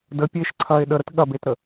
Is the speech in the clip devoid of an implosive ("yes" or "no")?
no